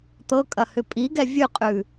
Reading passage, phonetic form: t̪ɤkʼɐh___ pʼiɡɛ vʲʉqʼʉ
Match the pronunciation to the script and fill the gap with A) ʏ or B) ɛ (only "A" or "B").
A